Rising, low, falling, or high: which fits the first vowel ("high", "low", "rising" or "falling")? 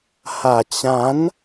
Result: low